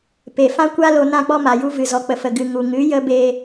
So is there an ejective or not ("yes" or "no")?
no